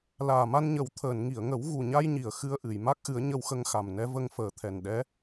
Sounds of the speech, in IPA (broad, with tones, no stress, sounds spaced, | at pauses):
l aː˨˩ m a˧ n ɲ ə˨˩˦ w t̪ʰ əː˨˩˨ n ŋ i˨˩˨ ə̯ ŋ ə˨˩˦ w ɣ u˨˩ ɲ a˧ j ɲ i˨˩˨ ə̯ x ɨ˧ ə̯ ʔ ɨ˨˩˨ j m a˦˥ k̚ ʔ ɨ˨˩˦ ə̯ ɲ ə˧ w x ə˧ ŋ x a˨˩ m n ɛ˧˥ v ə˧ ŋ f əː˨˩ t̪ʰ ɛ˨˩ n ɗ ɛ˧˥